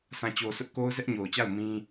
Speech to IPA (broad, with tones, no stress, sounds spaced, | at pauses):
s ã˨ t͡ɕ o˨ sʰ ʊ˦ ʔ k o˦ ʊ̯ z ɛ˦ ʔ ɲ o˨ ʊ̯ t͡ɕ a˦˨ ʊ̯ m ĩ˦